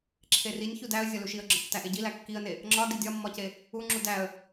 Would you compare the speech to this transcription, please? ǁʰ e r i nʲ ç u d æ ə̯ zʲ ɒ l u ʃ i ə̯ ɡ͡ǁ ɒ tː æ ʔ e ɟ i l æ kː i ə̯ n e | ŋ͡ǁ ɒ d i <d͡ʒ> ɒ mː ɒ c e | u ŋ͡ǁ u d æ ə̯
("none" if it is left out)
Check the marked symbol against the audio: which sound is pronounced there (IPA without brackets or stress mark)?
dʲ